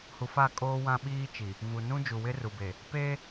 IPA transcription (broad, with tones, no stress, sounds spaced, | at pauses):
h u˨ f a˦˨ kʼ oː˦ w ã˦ ɓ iː˦ t͡ʃ i˨ | v u˨ n ũ˦ d͡ʒ u˨ w ɪ˦ r u˨ b e˨ | p e˦